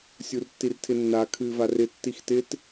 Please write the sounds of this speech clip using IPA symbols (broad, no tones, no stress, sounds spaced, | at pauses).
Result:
sʲ u r tː i r tʰ ɪ nː a kʰ ɨː v a r ɪ tː i x t ɪ t